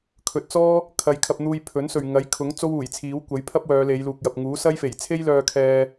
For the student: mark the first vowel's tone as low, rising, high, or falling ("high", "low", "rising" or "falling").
low